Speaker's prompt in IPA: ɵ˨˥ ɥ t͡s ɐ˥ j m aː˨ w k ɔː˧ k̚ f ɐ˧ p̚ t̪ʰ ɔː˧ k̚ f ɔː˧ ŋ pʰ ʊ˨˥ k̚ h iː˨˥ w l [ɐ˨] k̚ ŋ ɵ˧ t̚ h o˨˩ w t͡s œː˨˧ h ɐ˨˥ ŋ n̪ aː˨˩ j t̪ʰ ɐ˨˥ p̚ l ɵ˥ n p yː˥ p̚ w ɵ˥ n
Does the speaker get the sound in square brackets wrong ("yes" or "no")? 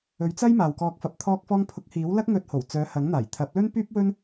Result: yes